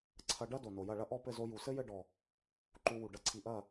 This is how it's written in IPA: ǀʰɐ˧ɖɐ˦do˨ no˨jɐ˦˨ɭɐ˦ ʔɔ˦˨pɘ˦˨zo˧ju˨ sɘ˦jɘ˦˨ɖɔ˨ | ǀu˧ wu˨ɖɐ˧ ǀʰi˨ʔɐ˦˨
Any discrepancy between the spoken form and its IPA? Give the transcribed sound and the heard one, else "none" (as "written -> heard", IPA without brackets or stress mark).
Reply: ǀ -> ǃ